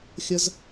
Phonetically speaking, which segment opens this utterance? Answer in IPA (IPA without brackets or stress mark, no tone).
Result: xʲ